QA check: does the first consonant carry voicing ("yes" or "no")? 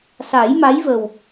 no